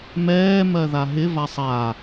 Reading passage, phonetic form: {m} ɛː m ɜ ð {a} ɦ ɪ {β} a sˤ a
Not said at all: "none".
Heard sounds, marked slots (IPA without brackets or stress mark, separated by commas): m, a, v